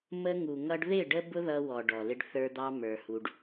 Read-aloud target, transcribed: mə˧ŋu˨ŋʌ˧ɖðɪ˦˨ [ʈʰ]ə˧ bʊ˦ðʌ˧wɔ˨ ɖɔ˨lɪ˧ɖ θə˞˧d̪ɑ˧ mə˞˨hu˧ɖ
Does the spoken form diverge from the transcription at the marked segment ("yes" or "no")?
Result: yes